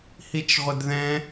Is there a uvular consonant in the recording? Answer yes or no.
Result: yes